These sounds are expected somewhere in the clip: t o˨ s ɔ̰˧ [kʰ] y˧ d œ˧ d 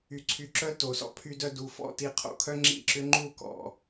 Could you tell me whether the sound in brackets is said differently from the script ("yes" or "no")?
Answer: yes